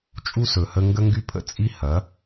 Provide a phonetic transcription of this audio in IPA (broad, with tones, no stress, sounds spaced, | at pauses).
t͡ʃʼ u˦ s ɵ˨ h ə˦ ŋ ɡ ə˦ ŋ ɡ y˦ pʰ ə̰˦ t͡sʼ i˦ h ɐ˨˦